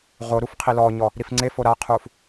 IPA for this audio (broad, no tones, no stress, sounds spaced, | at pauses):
ʁ o ɾ u f qʰ i l ɔ ɲ ɔ | ɾ i f ŋ͡ǀ e f o ɾ a qʰ u f